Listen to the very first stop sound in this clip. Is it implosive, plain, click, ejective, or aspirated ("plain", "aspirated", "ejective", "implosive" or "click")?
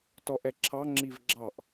plain